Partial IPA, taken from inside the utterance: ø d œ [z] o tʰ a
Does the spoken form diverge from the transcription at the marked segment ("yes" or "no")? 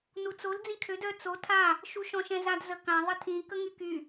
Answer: yes